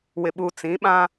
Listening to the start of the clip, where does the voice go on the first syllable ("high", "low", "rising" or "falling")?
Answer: low